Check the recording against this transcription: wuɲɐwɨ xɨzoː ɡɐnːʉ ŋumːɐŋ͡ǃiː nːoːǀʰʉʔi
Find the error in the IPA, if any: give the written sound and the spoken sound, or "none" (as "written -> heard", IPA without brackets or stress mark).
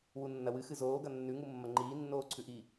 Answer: ɲ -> nː